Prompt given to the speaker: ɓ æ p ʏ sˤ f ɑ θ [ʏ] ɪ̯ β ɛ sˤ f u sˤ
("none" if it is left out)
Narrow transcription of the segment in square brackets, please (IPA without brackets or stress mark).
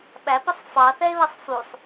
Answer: ɛ